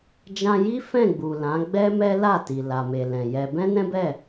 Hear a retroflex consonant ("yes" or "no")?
no